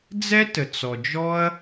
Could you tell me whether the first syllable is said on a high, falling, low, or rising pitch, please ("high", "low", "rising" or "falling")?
high